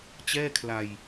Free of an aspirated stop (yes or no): no